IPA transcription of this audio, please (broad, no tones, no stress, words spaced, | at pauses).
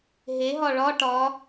ɦeɦɒ ɭɒ ʈɒ